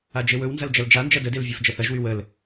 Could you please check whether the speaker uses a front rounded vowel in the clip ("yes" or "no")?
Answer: yes